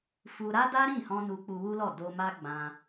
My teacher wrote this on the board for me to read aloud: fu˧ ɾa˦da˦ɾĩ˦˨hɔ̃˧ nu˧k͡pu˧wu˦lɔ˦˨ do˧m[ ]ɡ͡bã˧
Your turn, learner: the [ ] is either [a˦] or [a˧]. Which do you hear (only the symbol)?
a˦